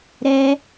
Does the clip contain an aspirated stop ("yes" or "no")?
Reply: no